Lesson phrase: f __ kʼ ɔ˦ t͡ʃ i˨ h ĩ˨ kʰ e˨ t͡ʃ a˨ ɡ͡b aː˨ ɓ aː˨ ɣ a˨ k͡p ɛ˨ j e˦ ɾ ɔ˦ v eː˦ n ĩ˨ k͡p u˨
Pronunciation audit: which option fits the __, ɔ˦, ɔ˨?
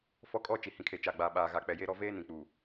ɔ˦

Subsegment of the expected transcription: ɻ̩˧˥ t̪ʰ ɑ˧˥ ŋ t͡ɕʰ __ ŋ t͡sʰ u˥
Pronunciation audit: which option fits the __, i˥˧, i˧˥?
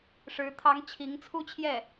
i˧˥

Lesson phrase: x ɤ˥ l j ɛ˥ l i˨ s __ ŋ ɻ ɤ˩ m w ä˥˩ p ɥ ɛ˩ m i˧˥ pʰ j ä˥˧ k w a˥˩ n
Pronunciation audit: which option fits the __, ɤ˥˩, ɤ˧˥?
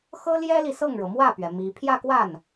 ɤ˥˩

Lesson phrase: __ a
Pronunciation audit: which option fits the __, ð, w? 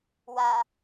w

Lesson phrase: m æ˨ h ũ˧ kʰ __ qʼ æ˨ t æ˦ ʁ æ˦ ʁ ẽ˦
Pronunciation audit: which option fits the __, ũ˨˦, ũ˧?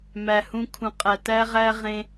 ũ˨˦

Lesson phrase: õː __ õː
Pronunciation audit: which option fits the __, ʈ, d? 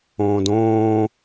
d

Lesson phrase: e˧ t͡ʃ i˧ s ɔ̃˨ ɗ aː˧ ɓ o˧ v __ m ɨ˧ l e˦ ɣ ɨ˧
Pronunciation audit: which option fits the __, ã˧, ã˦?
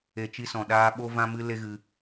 ã˧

